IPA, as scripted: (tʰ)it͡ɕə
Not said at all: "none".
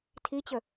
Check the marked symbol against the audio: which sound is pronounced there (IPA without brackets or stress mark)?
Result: tʰ